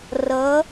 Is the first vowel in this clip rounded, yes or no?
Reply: no